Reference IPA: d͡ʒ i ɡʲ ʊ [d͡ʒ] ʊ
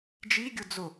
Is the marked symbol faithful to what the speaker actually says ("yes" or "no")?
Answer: no